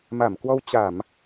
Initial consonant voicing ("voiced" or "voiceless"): voiced